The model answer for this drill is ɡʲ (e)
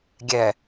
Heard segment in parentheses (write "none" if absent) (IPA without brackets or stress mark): ɛ